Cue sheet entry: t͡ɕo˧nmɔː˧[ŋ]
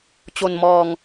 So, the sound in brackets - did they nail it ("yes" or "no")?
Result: yes